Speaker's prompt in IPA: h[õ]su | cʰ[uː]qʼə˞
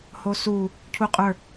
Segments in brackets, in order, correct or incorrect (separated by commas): incorrect, incorrect